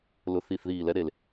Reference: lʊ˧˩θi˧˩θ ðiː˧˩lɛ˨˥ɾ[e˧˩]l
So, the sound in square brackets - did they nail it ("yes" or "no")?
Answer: yes